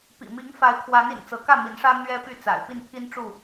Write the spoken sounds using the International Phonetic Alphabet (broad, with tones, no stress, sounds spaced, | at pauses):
p ḭ˨˩ m i˨˦ ŋ f a˨˦ ɪ̯ kʰ w a˨˦ n ḭ˨˩ n t͡s ɤ˨˦ k ä˥˨ m i˨˦ n ʂ ä˦ n̪ ɥ ɛ˦ p y˥˨ t͡s a̰˨˩ ɪ̯ p i˥˨ n pʰ i˦ n ʈ͡ʂ u˥˨